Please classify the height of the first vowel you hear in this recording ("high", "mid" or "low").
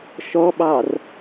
mid